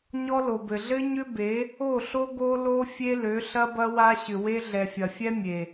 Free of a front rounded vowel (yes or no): no